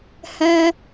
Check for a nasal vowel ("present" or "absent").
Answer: present